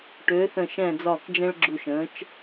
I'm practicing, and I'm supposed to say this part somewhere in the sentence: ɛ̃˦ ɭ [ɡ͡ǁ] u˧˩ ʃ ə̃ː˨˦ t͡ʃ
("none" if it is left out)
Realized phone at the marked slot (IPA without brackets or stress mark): ɡ͡ǁ